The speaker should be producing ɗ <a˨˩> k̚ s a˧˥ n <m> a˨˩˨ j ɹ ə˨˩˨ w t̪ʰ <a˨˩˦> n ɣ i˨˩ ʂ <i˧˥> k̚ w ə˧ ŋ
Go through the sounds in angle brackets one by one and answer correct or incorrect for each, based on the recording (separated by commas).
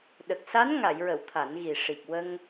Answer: incorrect, incorrect, correct, incorrect